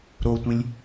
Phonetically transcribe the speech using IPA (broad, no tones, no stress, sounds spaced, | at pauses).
ɾ o tʷ ĩ lʲ